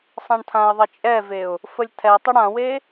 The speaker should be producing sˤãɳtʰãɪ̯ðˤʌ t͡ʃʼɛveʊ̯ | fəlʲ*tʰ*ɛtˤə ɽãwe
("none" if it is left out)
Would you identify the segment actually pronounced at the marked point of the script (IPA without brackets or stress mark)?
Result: tʰ